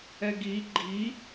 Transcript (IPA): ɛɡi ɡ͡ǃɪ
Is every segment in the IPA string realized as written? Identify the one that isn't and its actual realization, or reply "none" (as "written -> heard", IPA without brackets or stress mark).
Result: ɪ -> i